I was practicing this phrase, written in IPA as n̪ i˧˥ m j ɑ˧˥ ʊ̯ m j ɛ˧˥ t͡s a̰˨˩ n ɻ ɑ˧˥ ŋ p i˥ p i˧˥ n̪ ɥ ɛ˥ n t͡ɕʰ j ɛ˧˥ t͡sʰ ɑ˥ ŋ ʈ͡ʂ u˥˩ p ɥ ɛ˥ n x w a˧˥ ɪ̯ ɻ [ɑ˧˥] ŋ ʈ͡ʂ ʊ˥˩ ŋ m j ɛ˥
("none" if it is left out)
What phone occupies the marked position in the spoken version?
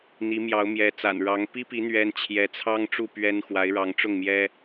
ɑ˧˥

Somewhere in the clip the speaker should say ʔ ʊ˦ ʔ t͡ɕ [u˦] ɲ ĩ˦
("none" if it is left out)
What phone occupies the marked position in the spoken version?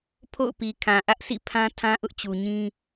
u˨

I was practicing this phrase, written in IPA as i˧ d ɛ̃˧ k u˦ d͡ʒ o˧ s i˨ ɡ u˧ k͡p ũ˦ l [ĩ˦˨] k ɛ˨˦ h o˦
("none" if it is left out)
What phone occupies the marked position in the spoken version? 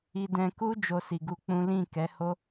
ĩ˦˨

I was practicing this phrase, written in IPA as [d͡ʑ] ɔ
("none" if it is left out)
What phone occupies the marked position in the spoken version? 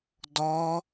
d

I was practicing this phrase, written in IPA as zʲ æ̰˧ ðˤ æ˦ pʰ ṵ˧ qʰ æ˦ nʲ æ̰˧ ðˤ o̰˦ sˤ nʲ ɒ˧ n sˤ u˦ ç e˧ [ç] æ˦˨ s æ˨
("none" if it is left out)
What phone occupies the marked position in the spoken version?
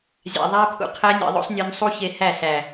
h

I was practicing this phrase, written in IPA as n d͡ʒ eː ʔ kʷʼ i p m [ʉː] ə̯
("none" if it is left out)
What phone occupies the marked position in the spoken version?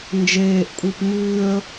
ʉː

